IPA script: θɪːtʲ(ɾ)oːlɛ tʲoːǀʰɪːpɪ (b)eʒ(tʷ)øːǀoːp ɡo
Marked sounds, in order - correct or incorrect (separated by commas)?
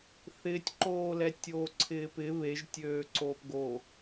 incorrect, incorrect, incorrect